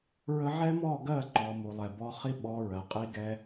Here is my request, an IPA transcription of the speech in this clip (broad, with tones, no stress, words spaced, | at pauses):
ɹə˧ ʕɛ˦mɔ˦˨ ɡɜ˦˨ǃɔ˨ mu˨lˠɛ˨bɔ˧χi˦ ɓɔ˧ɹɜ˨qʼi˦ɡɛ˦